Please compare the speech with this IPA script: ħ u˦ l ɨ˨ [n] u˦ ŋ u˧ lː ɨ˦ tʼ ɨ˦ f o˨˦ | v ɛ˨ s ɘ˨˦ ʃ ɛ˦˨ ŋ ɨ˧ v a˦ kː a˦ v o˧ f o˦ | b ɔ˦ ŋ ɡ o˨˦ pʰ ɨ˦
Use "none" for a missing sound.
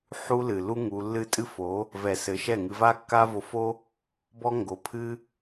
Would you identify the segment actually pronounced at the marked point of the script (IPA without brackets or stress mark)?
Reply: l